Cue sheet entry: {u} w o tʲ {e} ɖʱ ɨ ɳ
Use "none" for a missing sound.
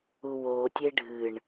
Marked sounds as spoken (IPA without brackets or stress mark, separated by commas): u, e